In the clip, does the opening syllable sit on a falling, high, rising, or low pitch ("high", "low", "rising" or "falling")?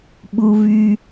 high